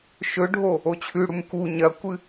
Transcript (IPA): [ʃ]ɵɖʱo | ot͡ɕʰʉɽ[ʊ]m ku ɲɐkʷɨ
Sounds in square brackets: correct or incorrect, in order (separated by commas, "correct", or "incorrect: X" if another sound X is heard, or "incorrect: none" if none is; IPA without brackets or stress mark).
correct, incorrect: u